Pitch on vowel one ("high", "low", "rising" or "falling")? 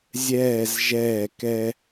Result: falling